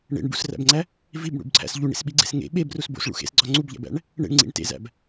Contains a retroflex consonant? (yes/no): yes